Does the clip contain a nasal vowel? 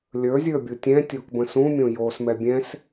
yes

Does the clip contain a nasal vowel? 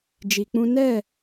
yes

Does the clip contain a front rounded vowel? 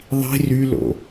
yes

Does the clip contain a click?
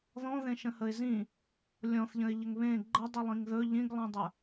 yes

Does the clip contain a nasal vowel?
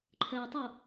no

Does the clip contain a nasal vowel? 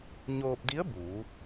no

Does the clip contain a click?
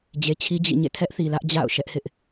no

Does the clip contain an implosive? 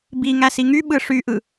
yes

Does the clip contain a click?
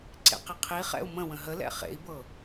yes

